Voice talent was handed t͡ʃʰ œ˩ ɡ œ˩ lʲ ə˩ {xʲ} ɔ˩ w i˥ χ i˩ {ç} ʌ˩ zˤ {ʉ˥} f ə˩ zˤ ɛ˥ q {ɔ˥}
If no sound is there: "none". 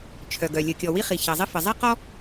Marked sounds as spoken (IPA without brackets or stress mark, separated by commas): kʲ, ç, ə˥, ɔ˥